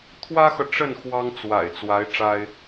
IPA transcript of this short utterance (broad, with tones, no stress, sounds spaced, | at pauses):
t̪ʰ w ä˥ x ɤ˨ ʈ͡ʂ ə˥˩ n x w ɑ˥ ŋ t͡s w a̰˨˩ ɪ̯ t͡s w a˧˥ ɪ̯ ʈ͡ʂ a˥ ɪ̯